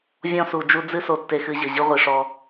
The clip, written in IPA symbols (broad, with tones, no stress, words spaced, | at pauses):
vʲɔ̃˦su˨d͡ʒu˦ d͡zɨ˦so˨ tːe˦xɨ˦ʑɘ˨ ʑɨ˦ʁʷi˨ʂɔ˦